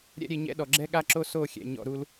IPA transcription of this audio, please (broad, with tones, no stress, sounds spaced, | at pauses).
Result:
ɾʲ ɛ̰˦ ɾʲ e˧ ɲ ɛ̰˦ ɗ ɔ˨ ɡ͡ǁ ɛ˦ ɠ a˦ ǁ o˦ s o˦˨ xʲ ɛ̰˨ ɲ ɔ̰˧ ɾ u˦ l